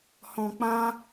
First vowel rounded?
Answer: yes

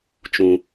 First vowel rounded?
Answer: yes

